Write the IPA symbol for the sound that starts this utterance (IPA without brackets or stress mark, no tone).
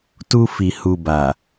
t